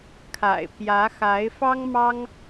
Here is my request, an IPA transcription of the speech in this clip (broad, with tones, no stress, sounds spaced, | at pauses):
kʰ a̰˨˩ ɪ̯ p j ä˧˥ x a˧˥ ɪ̯ f ɑ˥ ŋ m ɑ˥ ŋ